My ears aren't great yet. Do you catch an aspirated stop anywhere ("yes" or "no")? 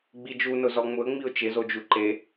no